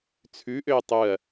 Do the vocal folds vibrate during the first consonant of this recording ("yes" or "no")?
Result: no